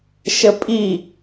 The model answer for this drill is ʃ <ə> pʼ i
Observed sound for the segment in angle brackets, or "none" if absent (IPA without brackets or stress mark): ə